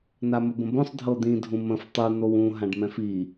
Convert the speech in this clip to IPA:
n̪aməbə̃bõsˤ dʱɤd̪ĩ dʱũmə̃f tˤu n̪owũ ɦãɖmɛ̃fi

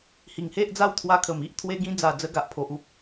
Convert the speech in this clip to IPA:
hi˨˩ŋhe˦ʔ d͡za˦wt̪ʰwa˧kʰə˨˩m i˦ʔ t̪ʰwe˧ɡĩ˧d͡za˨˩ d͡zə˧ɡa˨ʔ pʰo˨ʔu˦p̚

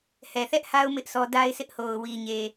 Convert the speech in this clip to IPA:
hɛ˨θɛ˦ʔha˦ʊ̯ mɪ˦ʔsʰɔ˦ da˦ɪ̯sʰɪ˦ʔho˨ʊ̯ wi˨ɲe˨

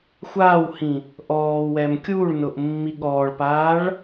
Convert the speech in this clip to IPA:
xʷaːwhĩ | ʔɔːwɛm kʲuɭnʊʔ mːiɠɔːɭpaːɭ

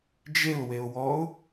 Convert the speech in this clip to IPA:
d͡ʒeʊ̯weʊ̯wɔʊ̯

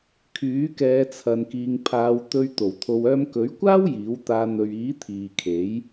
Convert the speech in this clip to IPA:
kʰyː˨˥kɛː˨˧ t͡sʰɐ˧nkiː˧ŋ pʰaː˨˧w t̪ɵ˧ɥ t̪o˨˩wt̪ʰo˨w œː˧mkɵ˨˥ɥkʷaː˥w jiː˨˥w t̪aː˨˧n̪ɵ˨ɥ iː˨˥ t̪ʰiː˨kʰe˨˥j

